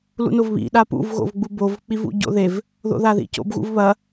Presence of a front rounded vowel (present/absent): absent